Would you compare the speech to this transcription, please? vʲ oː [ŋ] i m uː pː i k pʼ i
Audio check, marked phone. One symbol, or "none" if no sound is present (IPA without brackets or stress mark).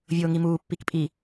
ŋ